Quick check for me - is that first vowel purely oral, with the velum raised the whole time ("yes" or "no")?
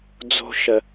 yes